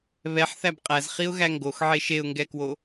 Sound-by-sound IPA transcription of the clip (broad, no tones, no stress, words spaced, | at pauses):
βɛħθæb qʼæzχiʊ̯ɣæ ŋɡoxʕe ʃeʊ̯ŋɡɛkwo